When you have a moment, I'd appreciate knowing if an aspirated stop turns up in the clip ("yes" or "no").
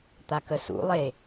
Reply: no